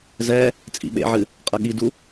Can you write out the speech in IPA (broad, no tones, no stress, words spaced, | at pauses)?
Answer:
zɛ | t͡sʼḭɓḛʕɨ | qʼɐɠidu